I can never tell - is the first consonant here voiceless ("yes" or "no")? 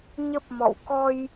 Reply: no